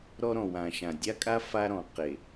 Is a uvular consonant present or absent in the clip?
present